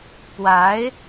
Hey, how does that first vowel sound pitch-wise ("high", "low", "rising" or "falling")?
rising